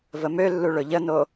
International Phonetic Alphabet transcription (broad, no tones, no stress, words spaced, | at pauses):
vəmølːu ɭʊʎəno